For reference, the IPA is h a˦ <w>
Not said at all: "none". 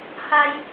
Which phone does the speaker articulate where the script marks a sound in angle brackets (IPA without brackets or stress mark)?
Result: j